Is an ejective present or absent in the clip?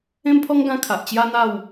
absent